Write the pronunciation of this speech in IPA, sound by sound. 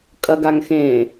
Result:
kʼ ɐ ɡ a ŋ x ẽ

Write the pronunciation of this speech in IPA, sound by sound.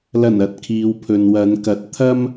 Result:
l ɐ˨˩ n ɐ˨ t̚ kʰ iː˨ w pʰ ɵ˨ n w ɐ˨˧ n k ɐ˨˥ t̚ t̪ʰ ɐ˥ m

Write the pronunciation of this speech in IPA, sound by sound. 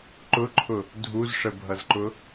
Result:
ǃ ʊ ǃʰ ʊ | dʱ u z ʂ ə bʱ ʌ z ǃ ʊ

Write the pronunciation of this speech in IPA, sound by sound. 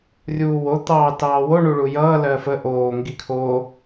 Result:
rʲ uː w o t̪ ɑː t ɑː w o ɳ u ɭ u j ʌː l ɜ f ə ʔ oː ŋ ɡ i kʰ o

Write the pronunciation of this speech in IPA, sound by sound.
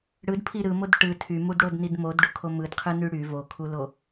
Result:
ɽ ɯ d pʰ i ɾ ɯ m o d ʈ ɯ tʰ y m u d ɽ o d n i d m o d ɖ u kʰ o m ɯ d qʰ ɯ n y ɽ y v o kʰ u l o

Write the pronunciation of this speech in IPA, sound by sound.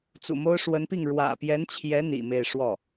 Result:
t͡s ṵ˨˩ m o˥ ʊ̯ ʂ w ə˧˥ n p i˥˩ ŋ ɻ w ä̰˨˩ p j ɛ˧˥ n t͡ɕʰ j ɛ˧˥ n̪ ḭ˨˩ m e˥˧ ɪ̯ ʂ w ɔ˥˩

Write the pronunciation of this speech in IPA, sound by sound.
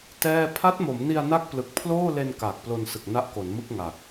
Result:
t ɛː˥˩ pʰ a˦˥ t̚ m o˩˦ m n i˧ a̯ n a˥˩ k̚ p l ɯ˨˩ k̚ pʰ l oː˥˩ l e˧ n k aː˨˩ k̚ p l o˧ n s ɯ˨˩ k̚ n a˦˥ ʔ k o˩˦ n m ɯ˥˩ k̚ ŋ a˨˩ k̚

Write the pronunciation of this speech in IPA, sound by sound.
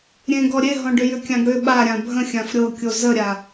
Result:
ɾʲ ẽ ɡ ɔ ɾʲ e ɦ ɔ̃ ɖ ʏ j ʏ kʲ ã ɡ ɽ ʏ ɓ a ɾʲ ã bʱ ə̃ xʲ ã f ɾʲ ɤ kʲ o z ə ɾʲ a

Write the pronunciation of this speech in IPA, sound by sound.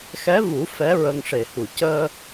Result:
x ɛ˧˥ v u˨˩˦ f ɛ˧˥ ɹ ə˧ ŋ ʂ e˨˩ h u˨˩˨ c əː˧

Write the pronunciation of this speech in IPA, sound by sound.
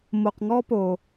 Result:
m o˧ q ŋ ɔ˥ p o˧

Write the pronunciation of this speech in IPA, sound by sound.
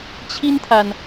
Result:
t͡ɕʰ i˥ n t̪ʰ a˨ n

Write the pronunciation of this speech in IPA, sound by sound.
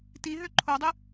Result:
t i ɦ ø ǃʰ o dˤ ɨ

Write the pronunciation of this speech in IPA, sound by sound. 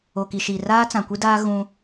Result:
o˨ k i˨ ʃ i˨ r aː˦ t͡s ã˨ kʷ i˦ d aː˦ ɣ ũ˦

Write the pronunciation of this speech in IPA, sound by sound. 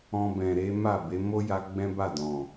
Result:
ɔ̃˧ b ɛ̃˨ ɾ e˨˦ m a˦˨ b e˨˦ m o˦ j a˧ ɡ͡b ɛ̃˦ b a˦˨ d ɔ̃˨

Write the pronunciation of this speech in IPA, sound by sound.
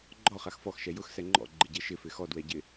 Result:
ɡ͡ǃ ɔ χ a x f ɔ x ʃ ɛ j ʊ x s ɛ ŋ͡ǃ ɔ̰ ɡ͡ǃ ɪ ɟ e ʃ ɪ f ɪ x ɔ d w ɛ ɟ ɪ

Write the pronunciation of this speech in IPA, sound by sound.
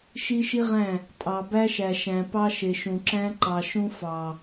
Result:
ʃ i˦ ʃ i˦ ʁ æ̃˦˨ | tʼ ɑ˨ b æ˦ ʃ æ˨ ʃ æ̃˨ p ɑ˦ ʃ e˨ ʃ ũ˨ ǁ æ̃˦ ǃ ɑ˨ ʃ ũ˦ f ɑ˨

